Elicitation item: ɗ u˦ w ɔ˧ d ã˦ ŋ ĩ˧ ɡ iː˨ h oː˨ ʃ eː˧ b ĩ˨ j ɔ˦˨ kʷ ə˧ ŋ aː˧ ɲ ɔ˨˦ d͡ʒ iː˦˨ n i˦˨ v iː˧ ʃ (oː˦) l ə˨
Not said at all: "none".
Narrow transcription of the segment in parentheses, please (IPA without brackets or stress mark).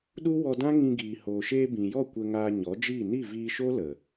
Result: o˦